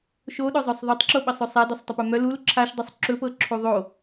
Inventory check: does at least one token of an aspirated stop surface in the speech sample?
yes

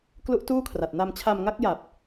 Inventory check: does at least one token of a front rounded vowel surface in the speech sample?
no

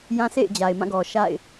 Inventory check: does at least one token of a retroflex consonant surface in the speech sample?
no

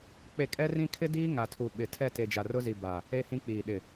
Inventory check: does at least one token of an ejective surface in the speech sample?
yes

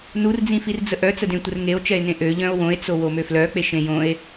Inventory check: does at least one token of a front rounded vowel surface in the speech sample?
yes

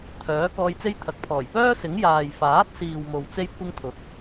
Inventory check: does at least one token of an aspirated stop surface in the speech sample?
yes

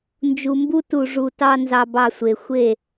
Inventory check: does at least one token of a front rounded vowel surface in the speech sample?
no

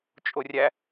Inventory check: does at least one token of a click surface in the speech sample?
no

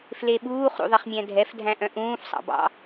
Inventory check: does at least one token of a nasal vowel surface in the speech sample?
yes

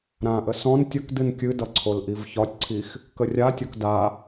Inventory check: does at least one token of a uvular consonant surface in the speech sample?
no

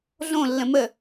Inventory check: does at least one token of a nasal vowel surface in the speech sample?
yes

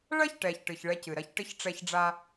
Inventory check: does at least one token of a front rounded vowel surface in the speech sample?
no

